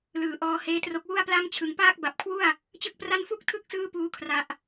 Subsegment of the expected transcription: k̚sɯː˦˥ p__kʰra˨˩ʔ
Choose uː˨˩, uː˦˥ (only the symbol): uː˦˥